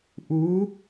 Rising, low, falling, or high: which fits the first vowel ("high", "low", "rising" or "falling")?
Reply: rising